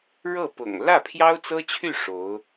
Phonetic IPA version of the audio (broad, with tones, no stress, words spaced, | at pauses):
ɻɤ˥˩pʊ̰˨˩ŋ lä˥˩pʰjɑ˥ʊ̯t͡sɤ˥t͡ɕʰy˥˩ ʂo˧˥ʊ̯